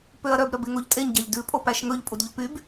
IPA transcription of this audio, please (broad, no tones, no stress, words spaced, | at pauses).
pøɐ̯ɾœb ɾœbeŋoʎtʼeɲ ɟɑʎdʉ pʼopæʃŋɵʎ pʼudʎopyb